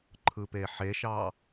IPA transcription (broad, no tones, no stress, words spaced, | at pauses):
ǃʰɯpeħeʃɑ